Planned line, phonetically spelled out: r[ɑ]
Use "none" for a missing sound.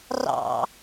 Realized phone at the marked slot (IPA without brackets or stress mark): ɑ̰